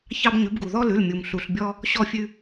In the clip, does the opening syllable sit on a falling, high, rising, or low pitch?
high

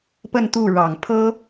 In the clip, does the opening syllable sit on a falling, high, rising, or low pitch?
falling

